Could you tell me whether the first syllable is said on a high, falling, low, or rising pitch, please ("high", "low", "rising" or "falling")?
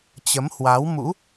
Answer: rising